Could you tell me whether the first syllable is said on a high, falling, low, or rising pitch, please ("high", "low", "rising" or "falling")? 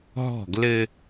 falling